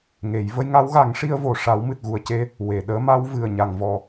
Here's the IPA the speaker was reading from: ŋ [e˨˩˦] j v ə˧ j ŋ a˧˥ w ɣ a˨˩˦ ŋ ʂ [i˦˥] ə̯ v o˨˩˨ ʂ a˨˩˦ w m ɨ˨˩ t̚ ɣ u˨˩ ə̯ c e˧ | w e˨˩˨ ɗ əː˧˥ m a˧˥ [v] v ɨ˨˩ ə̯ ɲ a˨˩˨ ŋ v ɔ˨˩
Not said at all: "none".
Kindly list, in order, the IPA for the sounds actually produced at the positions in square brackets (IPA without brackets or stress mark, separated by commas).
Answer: e˨˩˦, i˧, w